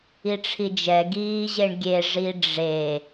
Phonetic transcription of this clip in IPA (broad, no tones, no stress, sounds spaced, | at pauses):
i ʈ͡ʂʰ i d͡ʒ ɛ ɡ iː ʑ e ɳ ɡʲ e ʐ i ɖ͡ʐ e